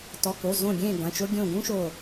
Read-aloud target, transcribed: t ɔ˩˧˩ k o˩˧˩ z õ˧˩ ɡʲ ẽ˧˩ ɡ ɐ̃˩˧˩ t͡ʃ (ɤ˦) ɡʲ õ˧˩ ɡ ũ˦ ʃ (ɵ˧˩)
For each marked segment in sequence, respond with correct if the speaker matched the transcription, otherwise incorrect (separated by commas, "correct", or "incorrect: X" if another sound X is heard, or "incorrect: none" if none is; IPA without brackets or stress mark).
incorrect: o˦, incorrect: o˧˩